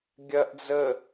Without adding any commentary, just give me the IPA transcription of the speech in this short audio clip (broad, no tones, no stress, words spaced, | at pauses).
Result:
ɡʲɐʔ d͡zə